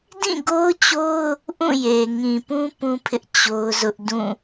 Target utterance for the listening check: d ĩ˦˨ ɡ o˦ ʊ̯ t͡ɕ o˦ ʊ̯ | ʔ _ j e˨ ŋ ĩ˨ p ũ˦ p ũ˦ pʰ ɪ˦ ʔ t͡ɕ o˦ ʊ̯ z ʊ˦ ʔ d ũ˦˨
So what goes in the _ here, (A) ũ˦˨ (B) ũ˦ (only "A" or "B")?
A